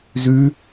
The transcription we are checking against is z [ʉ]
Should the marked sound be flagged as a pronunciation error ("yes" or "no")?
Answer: no